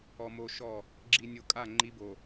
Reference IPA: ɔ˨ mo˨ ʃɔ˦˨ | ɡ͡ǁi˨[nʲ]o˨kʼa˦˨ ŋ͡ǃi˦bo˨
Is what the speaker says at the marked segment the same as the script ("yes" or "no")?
yes